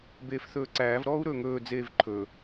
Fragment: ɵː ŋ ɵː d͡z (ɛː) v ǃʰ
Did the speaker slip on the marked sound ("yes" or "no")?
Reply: yes